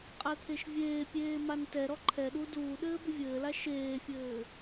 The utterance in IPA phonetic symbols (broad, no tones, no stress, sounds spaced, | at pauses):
qʼ ɛ t̪ʰ e ʃ vʲ eː pʲ eː m a n t ɛ ɾ ɔ ǃʰ ɛ ɗ u d uː ɗ ɘː b ʏ vʲ ɘː l a ʃ eː fʲ ɘː